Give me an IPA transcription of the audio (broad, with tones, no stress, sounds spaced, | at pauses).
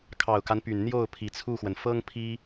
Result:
kʰ ɑ˨˩ ʊ̯ k a˦ n p y˨˩ n n̪ j o˥˩ ʊ̯ pʰ i˨˩ t͡sʰ u˥˩ x w ə˩ n f ɤ˥ ŋ pʰ i˥